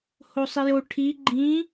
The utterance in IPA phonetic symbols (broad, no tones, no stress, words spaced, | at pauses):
hosˤijo ʈʰi ɡ͡ǃĩ